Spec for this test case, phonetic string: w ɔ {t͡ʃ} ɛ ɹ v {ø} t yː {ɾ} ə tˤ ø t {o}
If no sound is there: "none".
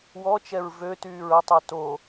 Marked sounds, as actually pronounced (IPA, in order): t͡ʃ, ø, ɹ, o

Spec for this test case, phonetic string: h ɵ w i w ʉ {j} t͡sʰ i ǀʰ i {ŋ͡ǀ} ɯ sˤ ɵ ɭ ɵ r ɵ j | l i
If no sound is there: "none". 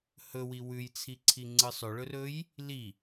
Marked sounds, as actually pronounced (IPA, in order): j, ŋ͡ǀ

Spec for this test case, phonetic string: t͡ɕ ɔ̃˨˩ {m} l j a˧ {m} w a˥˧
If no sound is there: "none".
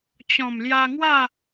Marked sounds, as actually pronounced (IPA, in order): m, ŋ

